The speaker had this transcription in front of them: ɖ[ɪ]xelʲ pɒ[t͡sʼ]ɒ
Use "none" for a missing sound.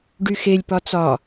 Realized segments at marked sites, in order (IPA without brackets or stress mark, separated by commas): y, t͡s